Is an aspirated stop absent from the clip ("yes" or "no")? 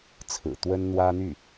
no